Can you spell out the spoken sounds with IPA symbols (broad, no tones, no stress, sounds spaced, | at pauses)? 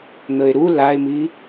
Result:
n̪ ə e̯ ɾ u l a e̯ m i